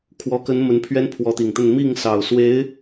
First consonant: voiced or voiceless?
voiceless